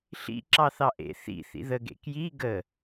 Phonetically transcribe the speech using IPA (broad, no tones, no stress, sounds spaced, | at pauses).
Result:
ɬ ḭ ǁ ɑ θ ɑ ʔ ḛ θ ḭ θ ḭ ð ə ɡ ḛ k j i ɡ ə